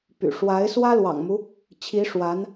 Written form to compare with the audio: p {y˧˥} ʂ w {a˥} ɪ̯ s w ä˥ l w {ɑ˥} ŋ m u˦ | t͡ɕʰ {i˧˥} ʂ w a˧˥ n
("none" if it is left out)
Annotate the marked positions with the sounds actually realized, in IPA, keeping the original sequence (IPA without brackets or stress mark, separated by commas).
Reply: y̰˨˩, a˧˥, ɑ̰˨˩, i˧˥